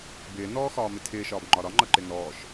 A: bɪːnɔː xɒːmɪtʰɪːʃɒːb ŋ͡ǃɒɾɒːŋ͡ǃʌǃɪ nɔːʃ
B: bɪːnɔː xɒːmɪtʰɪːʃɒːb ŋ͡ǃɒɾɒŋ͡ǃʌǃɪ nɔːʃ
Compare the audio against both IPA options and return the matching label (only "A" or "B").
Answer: B